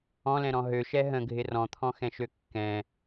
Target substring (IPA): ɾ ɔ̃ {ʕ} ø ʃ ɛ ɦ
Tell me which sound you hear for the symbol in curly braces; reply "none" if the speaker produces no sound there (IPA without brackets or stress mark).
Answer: ɦ